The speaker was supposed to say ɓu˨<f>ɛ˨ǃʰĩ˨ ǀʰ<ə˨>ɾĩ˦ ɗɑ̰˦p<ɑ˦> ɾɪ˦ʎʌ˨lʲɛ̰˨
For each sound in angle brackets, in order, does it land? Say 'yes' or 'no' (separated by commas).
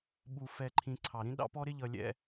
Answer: yes, no, no